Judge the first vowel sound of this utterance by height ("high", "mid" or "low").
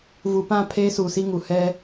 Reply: high